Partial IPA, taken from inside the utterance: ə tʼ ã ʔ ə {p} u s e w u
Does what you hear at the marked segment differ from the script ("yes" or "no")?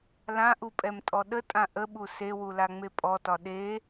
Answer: yes